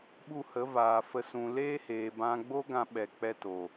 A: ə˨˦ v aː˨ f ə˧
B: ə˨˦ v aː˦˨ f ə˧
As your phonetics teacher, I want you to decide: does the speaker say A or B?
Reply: A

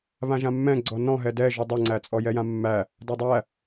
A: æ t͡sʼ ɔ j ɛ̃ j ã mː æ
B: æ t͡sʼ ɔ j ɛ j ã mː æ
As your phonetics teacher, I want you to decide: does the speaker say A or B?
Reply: B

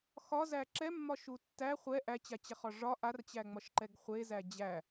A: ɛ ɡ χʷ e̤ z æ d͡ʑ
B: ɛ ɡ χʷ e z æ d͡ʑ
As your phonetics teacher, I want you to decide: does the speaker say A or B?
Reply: B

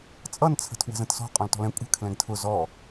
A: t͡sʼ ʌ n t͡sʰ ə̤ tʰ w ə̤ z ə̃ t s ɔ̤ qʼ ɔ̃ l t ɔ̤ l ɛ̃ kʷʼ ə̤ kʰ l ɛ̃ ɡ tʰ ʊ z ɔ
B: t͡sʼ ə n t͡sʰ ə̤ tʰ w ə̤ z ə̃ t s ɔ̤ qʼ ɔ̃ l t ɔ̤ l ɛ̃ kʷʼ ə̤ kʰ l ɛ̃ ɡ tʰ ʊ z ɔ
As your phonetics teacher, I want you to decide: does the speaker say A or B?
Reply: A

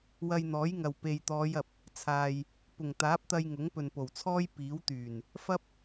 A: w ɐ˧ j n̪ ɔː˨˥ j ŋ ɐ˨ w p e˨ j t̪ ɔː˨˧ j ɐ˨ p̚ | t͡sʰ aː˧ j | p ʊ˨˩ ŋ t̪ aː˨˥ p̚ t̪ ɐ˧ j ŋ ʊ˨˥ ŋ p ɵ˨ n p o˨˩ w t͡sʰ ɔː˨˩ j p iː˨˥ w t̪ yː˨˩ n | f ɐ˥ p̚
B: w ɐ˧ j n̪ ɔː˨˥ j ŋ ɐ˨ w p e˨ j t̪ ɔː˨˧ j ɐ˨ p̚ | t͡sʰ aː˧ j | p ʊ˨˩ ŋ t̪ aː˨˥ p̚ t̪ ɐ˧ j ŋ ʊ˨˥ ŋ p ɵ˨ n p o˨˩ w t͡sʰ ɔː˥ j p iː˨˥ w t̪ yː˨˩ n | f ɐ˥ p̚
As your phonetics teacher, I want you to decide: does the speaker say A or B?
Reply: B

